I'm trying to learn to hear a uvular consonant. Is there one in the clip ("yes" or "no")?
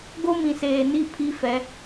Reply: no